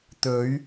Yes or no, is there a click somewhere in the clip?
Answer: no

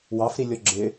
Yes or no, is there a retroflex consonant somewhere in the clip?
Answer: no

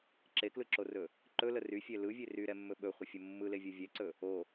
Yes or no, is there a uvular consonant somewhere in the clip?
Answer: yes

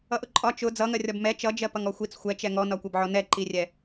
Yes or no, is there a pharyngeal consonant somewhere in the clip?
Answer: yes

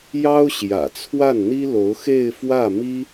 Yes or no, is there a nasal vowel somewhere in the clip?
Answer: no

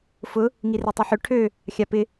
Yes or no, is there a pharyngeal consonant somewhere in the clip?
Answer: yes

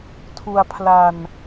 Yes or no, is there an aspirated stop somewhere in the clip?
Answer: yes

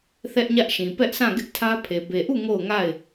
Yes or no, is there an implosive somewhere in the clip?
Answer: no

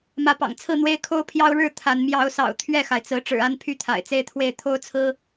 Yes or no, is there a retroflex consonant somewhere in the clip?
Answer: yes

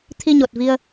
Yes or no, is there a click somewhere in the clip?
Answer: no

